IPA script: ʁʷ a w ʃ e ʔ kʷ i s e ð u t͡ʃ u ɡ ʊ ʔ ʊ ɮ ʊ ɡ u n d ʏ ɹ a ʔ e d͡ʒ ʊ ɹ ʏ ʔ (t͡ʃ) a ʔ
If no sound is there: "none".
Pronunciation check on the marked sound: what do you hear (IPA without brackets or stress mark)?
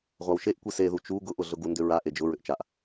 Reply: t͡ʃ